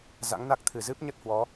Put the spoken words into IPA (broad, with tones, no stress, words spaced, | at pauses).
za̰˧˥ŋna˦˥k̚ t̪ʰɨ˧˩zɨ˦˥p̚ɲə˦˥t̚hwɔ˨˦